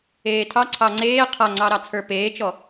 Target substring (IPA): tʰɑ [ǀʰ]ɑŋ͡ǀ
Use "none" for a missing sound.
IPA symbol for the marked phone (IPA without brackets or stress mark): ǀʰ